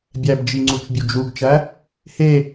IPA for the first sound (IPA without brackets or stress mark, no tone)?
bʲ